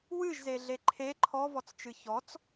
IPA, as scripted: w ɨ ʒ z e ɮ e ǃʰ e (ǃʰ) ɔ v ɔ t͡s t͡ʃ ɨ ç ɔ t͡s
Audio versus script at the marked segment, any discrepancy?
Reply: no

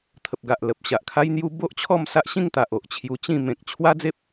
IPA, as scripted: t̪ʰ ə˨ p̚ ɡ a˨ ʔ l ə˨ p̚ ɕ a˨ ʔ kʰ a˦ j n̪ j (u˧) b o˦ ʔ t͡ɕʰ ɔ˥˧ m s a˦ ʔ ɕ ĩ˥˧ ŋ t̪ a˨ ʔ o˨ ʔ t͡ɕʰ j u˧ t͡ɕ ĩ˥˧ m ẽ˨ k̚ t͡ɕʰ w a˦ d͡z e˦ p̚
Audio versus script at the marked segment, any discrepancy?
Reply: yes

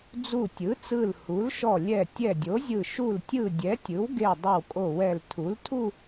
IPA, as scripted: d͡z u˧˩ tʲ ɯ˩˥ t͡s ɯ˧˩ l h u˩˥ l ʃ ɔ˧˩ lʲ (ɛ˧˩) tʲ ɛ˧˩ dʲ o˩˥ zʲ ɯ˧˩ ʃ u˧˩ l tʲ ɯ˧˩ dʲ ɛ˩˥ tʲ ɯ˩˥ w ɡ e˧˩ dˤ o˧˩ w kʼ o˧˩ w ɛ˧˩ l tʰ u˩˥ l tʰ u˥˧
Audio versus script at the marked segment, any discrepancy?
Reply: no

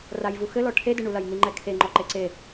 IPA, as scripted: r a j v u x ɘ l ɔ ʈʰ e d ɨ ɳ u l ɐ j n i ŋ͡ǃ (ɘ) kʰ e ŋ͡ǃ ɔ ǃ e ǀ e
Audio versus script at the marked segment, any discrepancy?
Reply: yes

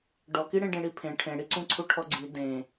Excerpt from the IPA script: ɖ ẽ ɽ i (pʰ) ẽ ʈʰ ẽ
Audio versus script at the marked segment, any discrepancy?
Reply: no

